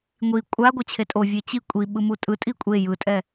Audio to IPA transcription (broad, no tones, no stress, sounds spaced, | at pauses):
ŋʷ i kʷʼ a ɡʷ ʌ t͡ɕʰ e tʼ o vʲ e t͡ɕ i kʷʼ i ɓ ɯ m u tʼ ɯ tʼ i kʷʼ e j ɯ tʼ ɛ